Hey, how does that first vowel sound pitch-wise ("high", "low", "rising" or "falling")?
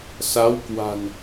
rising